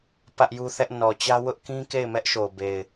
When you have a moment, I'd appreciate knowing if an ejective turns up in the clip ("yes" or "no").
no